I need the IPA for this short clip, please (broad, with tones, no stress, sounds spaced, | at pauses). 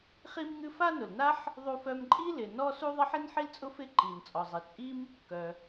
χ i˥ m ŋ ɨ˥ f a˥ n ʊ˩ l n a˥ ħ | ðˤ u˥ f œ˥ m ǃʼ i˥ l ɪ˩ n ɔ˥ s u˥ ðˤ ɪ˥ ħ i˥ n ħ i˥ l t͡sʼ ʊ˥ f ɪ˥ ǃ i˩ n t͡sʼ ɔ˩ zˤ i˩ t͡sʼ i˥ m | k œ˩